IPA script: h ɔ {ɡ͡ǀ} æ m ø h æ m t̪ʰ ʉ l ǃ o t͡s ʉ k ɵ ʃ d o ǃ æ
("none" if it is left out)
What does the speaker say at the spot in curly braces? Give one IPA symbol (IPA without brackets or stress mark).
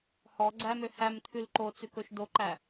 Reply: ɡ͡ǀ